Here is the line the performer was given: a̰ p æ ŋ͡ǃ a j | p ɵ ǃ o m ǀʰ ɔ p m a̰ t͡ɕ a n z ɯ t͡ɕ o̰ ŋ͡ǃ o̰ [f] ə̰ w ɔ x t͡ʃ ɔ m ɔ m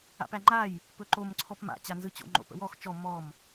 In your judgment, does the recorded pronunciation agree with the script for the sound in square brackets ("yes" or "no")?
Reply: no